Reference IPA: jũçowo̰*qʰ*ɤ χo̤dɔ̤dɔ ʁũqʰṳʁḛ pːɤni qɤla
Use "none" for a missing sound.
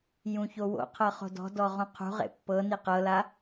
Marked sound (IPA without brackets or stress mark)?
qʰ